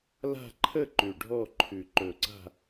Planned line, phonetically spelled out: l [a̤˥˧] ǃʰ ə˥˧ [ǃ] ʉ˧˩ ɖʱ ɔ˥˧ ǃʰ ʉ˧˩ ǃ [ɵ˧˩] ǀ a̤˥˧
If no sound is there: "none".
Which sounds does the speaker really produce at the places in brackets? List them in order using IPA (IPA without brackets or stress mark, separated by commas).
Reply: a̤˥˧, ǃ, ɵ˧˩